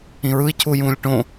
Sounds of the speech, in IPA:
ĩ ɹ ɯ i̯ cʰ u j ũː lʲ ʈ õ

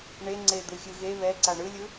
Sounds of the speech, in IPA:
ɳ e ŋ͡ǀ e d̪ ɯ xʲ ɯ ɣ e β ɛ ǀ a ɳ ɯ lʲ ɯ

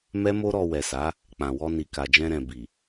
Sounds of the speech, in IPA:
m ɛ˦ m o˦ ɾ ɔ˧ w ɛ˨ s a˨˦ | k͡p ã˨ w ɔ˧ n i˨ k a˨ d͡ʒ ɛ̃˧ ɾ ɛ̃˨ b i˨

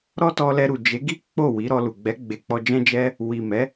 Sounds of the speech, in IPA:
ɾ ɔ˦ t ɔ˧ l ɛ˧ ɾ u˨ d͡ʒ e˨˦ ɡ i˦ k͡p o˦˨ w i˨˦ ɾ ɔ˧ l u˨ ɡ͡b ɛ˨˦ ɡ͡b e˧ k͡p ɔ˧ d͡ʒ ɛ̃˦ d͡ʒ ɛ˦ | w i˨ m ɛ˨˦

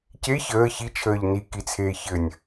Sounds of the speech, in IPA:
c e ç əː ç i t͡ʃʰ əː ʎ n i k i t͡sʰ eː ç ɘ nʲ

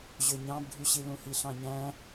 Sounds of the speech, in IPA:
ʑ ø ɲ ɑ̃ b ɖʱ y ɕ i l ũ h i ɬ ɑ̃ ɲ æ̃

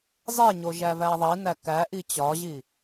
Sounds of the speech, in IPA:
zˤ e ɲ o ʒ æ v æ ðˤ i n æ k æ ʔ i t͡ɕ ɒ ʑ i

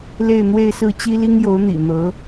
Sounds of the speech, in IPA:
l e˥˧ ɪ̯ n̪ w e˥˧ ɪ̯ s ɹ̩˥˩ t͡ɕ i˥ l i˥ ŋ j o˧˥ ʊ̯ n̪ ḭ˨˩ n̪ ɤ˧˥

